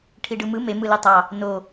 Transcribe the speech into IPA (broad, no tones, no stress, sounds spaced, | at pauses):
ʈʰ i ɖ ɯ m ɯ m e m ɯ l i tˤ ɑ | n o